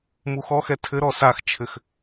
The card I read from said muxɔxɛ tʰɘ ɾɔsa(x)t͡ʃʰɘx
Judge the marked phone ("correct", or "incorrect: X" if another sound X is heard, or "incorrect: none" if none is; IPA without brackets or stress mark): correct